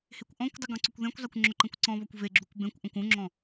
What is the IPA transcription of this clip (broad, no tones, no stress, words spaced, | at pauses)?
hekʷʔɔ̃kʷdˤʊ ɡɔ̃ǀʊkʷðẽkʷzˤekʷ ŋ͡ǁʊǃẽkʷǀɔ̃βɔkʷ veɡ͡ǁukʷ bẽkʷ ʔɔ̃kʷũŋ͡ǁɔ̃